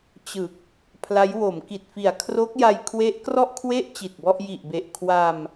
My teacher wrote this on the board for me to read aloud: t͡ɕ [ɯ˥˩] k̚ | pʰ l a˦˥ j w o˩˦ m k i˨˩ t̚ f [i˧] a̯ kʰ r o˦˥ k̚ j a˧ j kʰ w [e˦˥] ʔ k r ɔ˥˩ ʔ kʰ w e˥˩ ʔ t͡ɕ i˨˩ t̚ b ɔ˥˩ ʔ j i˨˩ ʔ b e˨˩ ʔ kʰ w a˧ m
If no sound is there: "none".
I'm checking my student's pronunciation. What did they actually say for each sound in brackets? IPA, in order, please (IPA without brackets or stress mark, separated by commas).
ɯ˨˩, i˨˩, e˦˥